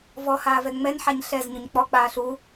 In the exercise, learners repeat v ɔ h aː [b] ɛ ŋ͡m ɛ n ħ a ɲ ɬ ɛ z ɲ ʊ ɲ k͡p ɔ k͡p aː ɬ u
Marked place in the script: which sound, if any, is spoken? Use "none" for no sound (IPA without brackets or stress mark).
v